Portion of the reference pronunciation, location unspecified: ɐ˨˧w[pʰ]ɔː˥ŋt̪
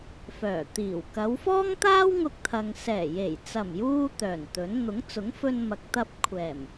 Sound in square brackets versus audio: incorrect: f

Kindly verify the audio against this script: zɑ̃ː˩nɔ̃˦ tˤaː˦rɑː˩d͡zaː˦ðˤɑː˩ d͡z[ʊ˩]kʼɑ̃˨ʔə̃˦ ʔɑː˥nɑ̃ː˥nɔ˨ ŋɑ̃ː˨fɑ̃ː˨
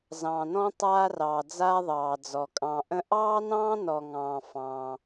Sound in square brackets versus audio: incorrect: ɔ˩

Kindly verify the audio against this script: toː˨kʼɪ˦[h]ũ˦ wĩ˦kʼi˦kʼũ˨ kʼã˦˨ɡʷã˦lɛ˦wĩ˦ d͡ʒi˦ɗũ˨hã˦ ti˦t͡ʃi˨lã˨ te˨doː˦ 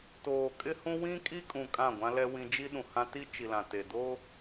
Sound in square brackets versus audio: correct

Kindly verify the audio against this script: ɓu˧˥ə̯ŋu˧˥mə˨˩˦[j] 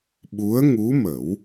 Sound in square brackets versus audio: incorrect: w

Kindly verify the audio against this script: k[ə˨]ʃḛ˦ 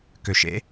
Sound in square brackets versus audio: incorrect: ø˨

